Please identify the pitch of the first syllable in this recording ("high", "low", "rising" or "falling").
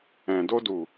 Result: low